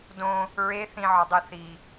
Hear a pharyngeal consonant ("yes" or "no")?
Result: yes